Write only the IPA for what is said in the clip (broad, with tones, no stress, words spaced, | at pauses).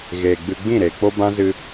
ɣeː˨ɡ͡bɨ˧ ɡ͡bĩ˦˨ɾe˨ k͡po˦bã˦zɨ˧